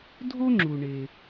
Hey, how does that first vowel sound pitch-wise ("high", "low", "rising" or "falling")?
high